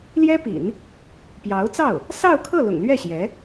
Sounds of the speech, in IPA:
l j ɛ˥ p ḭ˨˩˦ n | p j ɑ˧˥ ʊ̯ t͡s ɑ˥˩ ʊ̯ | s ɑ˥˧ ʊ̯ kʰ ɤ˥˩ l ʊ̰˨˩ ŋ l ɥ ɛ˥˩ ɕ j ɛ˧˥

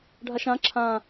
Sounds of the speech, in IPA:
ɖʱ a ʃ ã ǁʰ ã

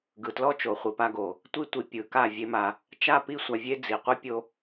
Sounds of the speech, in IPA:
ɡ ɯ˨ t l ɔ˧ t͡ʃ o˨ χʷ i˨ p a˧ ɡ o˨ | tʷ i˧ tʷ i˨ pʲ ɯ˨˦ k a˦˨ vʲ e˦ m a˧ | t͡ʃ a˦˨ p i˦˨ sʷ a˧ vʲ e˦ d͡z i˨ qʷ e˦ pʲ o˧

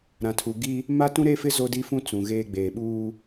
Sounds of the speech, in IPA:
ɾ ã˨ tʰ u˨ ɡ i˦ | m a˦ t ũ˦ ɾ eː˦ f ɪ˦ z o˦ d i˦ f ũ˦ t͡s ũ˨ ɣ eː˦ ɡ͡b eː˨ ɓ uː˦

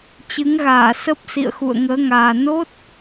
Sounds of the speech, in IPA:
t͡ɕ ɨ˨˦ ŋ ɣ aː˧˩ s ə˦˥ p̚ s ḭ˧˨ ə̯ x ṵ˧˨ ə̯ ŋ əː˨˦ ŋ aː˨˩ n o˦˥ t̚

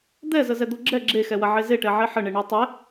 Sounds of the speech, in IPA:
d̪ ɛ z ə z ɛ d̪ o ɡ͡ǁ ɛ ɡ͡ǁ e x ɛ w ɐ ʕ e z e ʈ ɛ ʕ e ħ ə ɳ e ɳ o tˤ ɛ

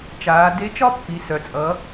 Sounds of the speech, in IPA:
t͡ʃ aː˩˧ d e˧˥ t͡ʃ ɒ˥ pː i˩˧ s œ˩ t͡sʼ ʌ˩˧

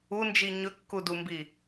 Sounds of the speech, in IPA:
u n d͡ʒ i ɲ ɵ kː u d u m b i

